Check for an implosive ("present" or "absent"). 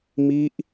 absent